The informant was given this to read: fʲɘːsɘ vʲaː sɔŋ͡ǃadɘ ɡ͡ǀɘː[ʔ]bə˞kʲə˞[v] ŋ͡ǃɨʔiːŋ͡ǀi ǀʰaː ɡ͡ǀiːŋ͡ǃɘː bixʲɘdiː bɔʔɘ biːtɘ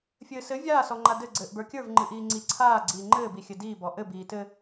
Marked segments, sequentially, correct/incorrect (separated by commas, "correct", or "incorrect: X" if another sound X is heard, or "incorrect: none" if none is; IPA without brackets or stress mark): correct, correct